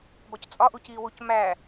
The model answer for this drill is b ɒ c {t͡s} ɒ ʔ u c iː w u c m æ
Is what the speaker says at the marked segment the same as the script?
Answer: no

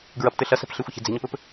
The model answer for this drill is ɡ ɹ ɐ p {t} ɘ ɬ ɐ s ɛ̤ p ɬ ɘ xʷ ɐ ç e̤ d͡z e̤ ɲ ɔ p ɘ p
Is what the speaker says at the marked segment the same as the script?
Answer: yes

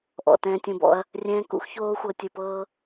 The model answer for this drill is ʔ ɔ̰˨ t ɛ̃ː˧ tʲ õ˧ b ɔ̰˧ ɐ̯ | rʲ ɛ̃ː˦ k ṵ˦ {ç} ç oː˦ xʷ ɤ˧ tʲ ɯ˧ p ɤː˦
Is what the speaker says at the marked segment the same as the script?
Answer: no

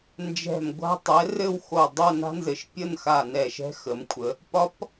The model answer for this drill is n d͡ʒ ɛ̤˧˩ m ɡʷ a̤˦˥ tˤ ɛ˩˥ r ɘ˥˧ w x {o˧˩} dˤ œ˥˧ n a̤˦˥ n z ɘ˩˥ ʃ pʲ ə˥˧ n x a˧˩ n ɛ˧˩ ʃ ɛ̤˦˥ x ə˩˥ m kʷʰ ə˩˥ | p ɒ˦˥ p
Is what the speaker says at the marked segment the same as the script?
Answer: yes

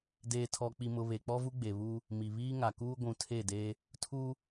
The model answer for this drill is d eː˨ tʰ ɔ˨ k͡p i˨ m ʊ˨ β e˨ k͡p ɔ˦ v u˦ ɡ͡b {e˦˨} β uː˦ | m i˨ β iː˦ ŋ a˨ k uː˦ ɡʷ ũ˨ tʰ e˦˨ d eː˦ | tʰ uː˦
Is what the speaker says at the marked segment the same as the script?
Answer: no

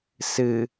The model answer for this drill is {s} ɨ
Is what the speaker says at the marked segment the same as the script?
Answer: yes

